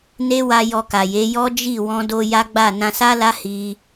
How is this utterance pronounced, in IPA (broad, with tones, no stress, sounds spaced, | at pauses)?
n e˦ w a˧ j ɔ˧ k a˨ j e˨˦ j ɔ˦ d͡ʒ i˦˨ w ɔ̃˧ d o˧ j a˦ ɡ͡b a˦˨ n ã˧ s a˦ l a˦ h i˧